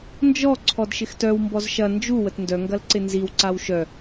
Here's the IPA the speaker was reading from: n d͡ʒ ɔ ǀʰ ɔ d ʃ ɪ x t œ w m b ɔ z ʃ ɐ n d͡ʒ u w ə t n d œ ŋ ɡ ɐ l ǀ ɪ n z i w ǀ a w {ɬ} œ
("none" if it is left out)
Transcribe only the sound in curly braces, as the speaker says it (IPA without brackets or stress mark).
ʃ